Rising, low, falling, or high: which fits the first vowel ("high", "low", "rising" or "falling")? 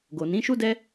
low